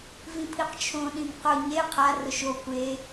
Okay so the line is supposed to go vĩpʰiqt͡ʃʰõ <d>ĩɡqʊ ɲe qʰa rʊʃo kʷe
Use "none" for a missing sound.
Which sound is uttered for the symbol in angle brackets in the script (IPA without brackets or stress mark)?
ɗ